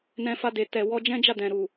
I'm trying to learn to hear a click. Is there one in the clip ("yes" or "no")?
no